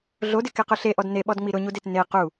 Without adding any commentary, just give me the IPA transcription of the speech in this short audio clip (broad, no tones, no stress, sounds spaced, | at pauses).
ɮ o d ɪ k e q ʊ ɬ e ʔ ɔ d n e ɓ ɔ d ŋ͡m i ɾ ʊ ɲ u d e t n e q u